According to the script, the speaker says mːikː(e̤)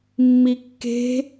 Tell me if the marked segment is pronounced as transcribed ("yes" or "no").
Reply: yes